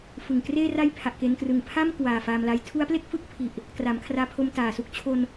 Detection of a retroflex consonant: absent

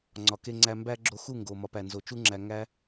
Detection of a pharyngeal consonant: absent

